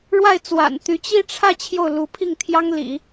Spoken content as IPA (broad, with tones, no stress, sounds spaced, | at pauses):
ɻ w a˥˩ ɪ̯ t͡s w a̰˨˩ n t̪ y˧˥ t͡ɕ i˥˧ ʈ͡ʂʰ ä˥˧ t͡ɕʰ j o˥˩ ʊ̯ l u˧˥ pʰ i˥˩ ŋ t̪ʰ j ɑ˥ ŋ l ḭ˨˩˦